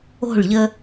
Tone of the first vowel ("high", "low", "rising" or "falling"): falling